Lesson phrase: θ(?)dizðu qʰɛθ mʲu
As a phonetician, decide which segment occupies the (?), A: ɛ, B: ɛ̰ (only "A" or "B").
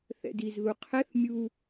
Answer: B